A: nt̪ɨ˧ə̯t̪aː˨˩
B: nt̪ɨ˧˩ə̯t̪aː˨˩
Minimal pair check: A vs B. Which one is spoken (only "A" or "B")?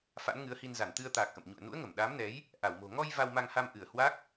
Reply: A